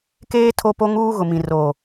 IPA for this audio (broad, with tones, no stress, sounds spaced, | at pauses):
k eː˦ tʰ o˦ p o˦ ŋ uː˦ ɣ ʊ˨ m ĩ˨ r oː˨